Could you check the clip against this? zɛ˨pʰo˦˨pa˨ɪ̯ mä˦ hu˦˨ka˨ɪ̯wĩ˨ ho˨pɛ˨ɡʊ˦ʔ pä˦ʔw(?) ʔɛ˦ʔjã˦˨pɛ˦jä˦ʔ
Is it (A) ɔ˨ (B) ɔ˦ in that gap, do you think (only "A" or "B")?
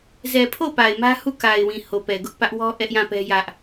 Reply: B